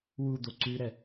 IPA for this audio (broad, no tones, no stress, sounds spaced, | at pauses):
w u d̪ o ǀ ʉ ɾ ɛ